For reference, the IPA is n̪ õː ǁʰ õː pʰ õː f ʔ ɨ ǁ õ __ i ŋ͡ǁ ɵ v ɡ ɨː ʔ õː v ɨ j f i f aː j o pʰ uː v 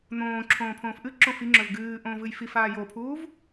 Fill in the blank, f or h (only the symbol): f